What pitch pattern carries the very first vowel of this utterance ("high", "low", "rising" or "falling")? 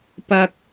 low